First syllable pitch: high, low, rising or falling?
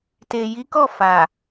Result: low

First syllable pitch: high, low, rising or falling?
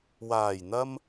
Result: low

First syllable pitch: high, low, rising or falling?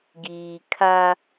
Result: low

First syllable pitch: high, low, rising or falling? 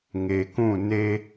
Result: low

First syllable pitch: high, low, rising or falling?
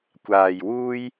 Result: low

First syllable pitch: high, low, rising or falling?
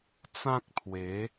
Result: high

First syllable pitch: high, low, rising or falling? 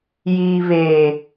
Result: low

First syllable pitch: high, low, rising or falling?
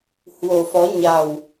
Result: low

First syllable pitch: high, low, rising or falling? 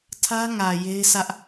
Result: high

